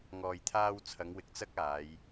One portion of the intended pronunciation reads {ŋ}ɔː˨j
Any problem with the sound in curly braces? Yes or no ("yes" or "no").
no